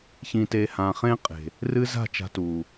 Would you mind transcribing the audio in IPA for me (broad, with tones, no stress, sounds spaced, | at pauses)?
ç ĩ˨ t e˨ h ã˨ χ ẽ˦ qʼ e̤˨ | r ɨ˦ z a̤˦˨ t͡ʃ a̤˧ t u˨